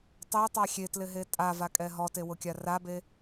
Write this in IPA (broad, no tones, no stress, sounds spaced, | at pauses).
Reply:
tˤ e tˤ a xʲ e t l ɪ ɦ e tʼ a v a kʼ ɛ ɦ ɔ t e w ʊ kʲ a r a b e